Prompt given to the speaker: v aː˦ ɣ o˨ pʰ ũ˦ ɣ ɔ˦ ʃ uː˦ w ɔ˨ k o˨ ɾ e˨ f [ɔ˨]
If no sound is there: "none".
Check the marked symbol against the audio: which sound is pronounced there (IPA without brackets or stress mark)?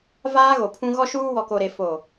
o˨